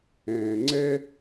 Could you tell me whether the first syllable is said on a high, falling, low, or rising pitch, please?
low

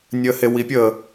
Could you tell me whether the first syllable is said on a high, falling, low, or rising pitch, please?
low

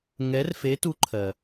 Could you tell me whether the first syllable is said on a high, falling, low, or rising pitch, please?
rising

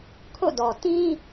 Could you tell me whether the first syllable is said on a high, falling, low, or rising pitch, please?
falling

